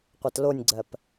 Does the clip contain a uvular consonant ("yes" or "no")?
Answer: yes